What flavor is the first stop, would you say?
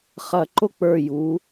click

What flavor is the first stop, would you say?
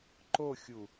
click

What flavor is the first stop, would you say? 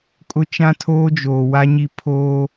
ejective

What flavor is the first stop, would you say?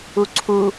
click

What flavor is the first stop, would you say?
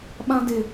implosive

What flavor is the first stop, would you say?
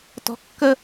plain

